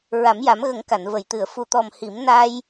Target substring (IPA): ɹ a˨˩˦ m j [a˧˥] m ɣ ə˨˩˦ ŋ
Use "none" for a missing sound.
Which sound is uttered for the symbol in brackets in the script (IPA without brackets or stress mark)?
a˨˩˦